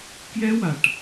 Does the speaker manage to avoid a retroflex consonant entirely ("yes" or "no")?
no